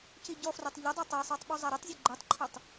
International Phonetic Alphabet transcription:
c i ɟ ɔ f r o tˤ ʎ ʊ dˤ a tˤ ɛ sˤ o tˤ ɓ u zˤ a ɾ i tˤ zʲ o ɡ͡ǃ u tˤ ǃʰ o tˤ

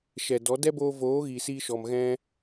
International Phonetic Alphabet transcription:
ʃ ɛ˨ d ɔ˨˦ d ɛ˦ b oː˧ v oː˨˦ ɣ i˨ s iː˧ ʃ ɔ˨ m ɣ ɛ̃˦

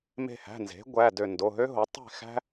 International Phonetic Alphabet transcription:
m e̤˧˩ h æ̤˩˧˩ n z e̤˩˥ ɡʷ æ˩˧˩ d ø˧˩ n d o˩˧˩ ɦ ø˥ ɦ o˩˥ tˤ e̤˥˨ x æ̤˥

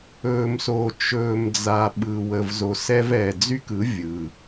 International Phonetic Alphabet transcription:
ɵː˨ m s oː˨ t͡ʃ ɵː˨ m d͡z a˨ ɓ ɯ˨ w ə˨ v z o˨ s ɛ˧ v ɛː˨ d͡z y˦ k ɯ˨˦ vʲ ɯ˨

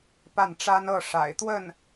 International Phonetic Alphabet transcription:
p a˥˩ n ʈ͡ʂ a˥ n ɤ˥˩ ʂ a̰˨˩ ɪ̯ t̪ w ə˥˩ n

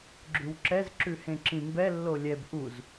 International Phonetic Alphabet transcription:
ɡ͡ǁ ʉ w ǁ ɛ z ǁ ʉ h ẽ ǁ ĩ m b ɛ lː o lʲ ɛ b ʔ u z

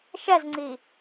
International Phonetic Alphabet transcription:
ʃ ɛ z ŋ͡ǀ i

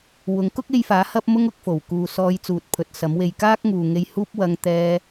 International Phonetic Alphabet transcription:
w ʊ˨˥ ŋ k ʊ˥ k̚ e˧ j f aː˨˥ h ɐ˥ p̚ m ʊ˥ ŋ ʊ˧ k̚ f o˨˩ w k uː˨ s ɔː˨˧ j t͡s uː˨ t̚ pʰ ɵ˨˥ t̚ s ɐ˨˥ m w e˧ j k aː˥ k̚ ŋ uː˨ ŋ e˧ j h uː˥ p̚ w ɐ˧ ŋ t̪ ɛː˧

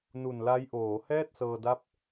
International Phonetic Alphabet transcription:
n u˨˩ n l a˦˥ j ʔ oː˩˦ h ɛː˥˩ t̚ s ɤː˧ d a˦˥ p̚

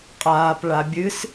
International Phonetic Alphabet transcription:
qʼ aː p ɭ a bʲ ɨ s

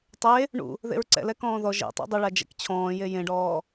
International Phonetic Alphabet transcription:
tˤ e | ɳ ṵ | ð ḛ ɹ ǀ ɛ̰ l ɛ k ɔ̃ː ð ɔ ʒ ḛ tˤ ṵ dˤ ʊ ɭ a d͡ʒ ɛ̰ k t͡ɕʰ ɔ̃ː j e j ẽ ɖ ɔː

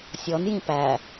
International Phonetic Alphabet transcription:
sʲ ɔ n j ĩ p æ

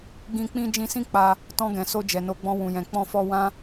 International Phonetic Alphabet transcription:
ɡ ĩ˧ k͡p ĩ˦ d͡ʒ ĩ˧ s ĩ˦ k͡p a˧ | t ɔ̃˧ ɡ ɛ̃˨ s o˧ d͡ʒ ɛ˨ n o˨˦ ɡ͡b ɔ̃˧ w ũ˨ j ɛ̃˨ k͡p ɔ̃˧ f ɔ˧ w ã˦

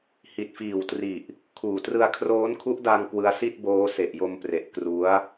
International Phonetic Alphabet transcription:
h i˨˩ t̚ f iː˨˩ w t r i˨˩ ʔ | kʰ uː˨˩ t r ɯ˧ a̯ kʰ r oː˦˥ n kʰ u˦˥ ʔ d a˧ ŋ k w ɯ˦˥ a̯ s i˥˩ t̚ b oː˦˥ s e˨˩ ʔ j o˧ m p r e˨˩ ʔ k r u˦˥ a̯

